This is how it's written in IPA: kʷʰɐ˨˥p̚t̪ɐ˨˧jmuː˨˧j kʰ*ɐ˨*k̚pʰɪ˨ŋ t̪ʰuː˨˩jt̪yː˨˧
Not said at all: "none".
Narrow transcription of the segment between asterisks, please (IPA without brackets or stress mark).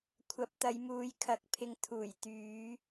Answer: ɐ˨